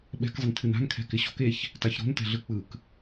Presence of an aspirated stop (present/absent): present